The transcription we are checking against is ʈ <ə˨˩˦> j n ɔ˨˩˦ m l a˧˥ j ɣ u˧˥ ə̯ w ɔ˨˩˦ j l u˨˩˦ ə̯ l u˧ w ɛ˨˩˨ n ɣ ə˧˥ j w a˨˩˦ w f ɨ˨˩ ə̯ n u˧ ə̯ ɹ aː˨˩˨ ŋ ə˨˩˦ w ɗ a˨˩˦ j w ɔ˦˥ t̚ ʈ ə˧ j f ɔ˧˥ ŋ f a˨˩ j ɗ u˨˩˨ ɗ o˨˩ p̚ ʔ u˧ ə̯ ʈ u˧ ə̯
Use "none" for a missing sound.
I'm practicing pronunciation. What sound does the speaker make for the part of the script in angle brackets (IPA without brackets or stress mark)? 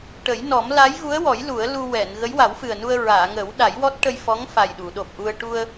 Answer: ə˨˩˦